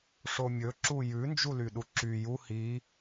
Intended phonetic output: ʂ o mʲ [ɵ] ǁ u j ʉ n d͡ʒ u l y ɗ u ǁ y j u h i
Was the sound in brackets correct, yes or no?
yes